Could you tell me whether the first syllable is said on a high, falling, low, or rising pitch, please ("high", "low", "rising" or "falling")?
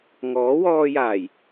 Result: rising